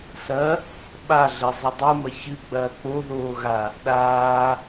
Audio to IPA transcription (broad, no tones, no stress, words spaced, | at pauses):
sɐ | ɓaɮɘ zˤɨdˤumɐ çɨ ɡ͡bɐːk͡poðoː ɣa | ɗaː